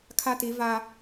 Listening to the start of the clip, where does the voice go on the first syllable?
high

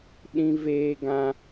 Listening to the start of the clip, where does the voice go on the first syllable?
high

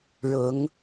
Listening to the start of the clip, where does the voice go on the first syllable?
rising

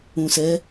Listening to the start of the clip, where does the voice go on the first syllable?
low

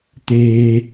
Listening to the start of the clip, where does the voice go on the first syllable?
low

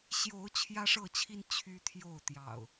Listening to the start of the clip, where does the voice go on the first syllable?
rising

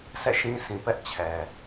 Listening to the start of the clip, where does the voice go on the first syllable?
falling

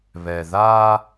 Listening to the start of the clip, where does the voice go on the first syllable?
low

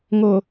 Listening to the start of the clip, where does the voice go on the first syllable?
low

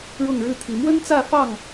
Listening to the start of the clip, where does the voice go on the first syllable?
falling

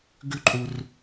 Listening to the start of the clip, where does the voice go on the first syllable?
high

